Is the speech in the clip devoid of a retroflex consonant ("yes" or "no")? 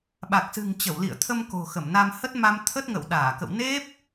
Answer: yes